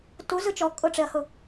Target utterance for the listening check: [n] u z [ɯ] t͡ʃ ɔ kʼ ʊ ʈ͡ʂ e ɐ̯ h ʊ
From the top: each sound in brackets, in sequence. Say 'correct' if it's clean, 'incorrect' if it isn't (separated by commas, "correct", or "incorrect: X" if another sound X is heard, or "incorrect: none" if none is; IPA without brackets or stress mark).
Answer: incorrect: t, correct